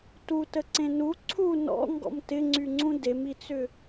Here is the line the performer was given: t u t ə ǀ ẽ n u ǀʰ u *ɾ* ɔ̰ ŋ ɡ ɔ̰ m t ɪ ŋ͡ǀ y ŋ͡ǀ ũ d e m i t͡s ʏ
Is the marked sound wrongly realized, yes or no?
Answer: yes